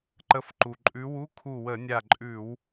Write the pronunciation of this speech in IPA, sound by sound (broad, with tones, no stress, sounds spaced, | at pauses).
ǃ ə˨˦ f ǃ u˩ ǃʼ ʉ˨˦ w u˧˥˧ kʰ u˧˩ w ə˧˩˧ nʲ a˧˩ ǃʼ ʉ˧˩˧ w